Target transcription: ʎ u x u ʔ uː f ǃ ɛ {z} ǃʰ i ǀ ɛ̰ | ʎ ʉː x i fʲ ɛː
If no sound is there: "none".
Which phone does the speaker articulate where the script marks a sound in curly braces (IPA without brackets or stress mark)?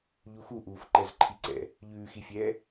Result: z